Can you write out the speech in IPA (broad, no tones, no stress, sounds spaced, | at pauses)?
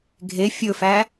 ɡʱ e fʲ ɵ f æ